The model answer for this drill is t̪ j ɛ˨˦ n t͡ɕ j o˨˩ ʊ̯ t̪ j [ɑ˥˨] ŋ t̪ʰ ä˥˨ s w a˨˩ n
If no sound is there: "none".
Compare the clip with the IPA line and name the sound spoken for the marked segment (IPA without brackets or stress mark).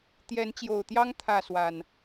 ɑ˦